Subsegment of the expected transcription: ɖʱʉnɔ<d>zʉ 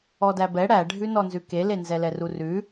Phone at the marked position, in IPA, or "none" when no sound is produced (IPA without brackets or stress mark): n